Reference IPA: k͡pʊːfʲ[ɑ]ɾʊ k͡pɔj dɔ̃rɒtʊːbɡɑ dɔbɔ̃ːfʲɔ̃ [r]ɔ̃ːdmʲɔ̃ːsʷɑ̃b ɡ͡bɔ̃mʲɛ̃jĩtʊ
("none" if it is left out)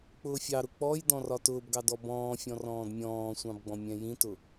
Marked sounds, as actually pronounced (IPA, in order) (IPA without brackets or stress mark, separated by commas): ɑ, r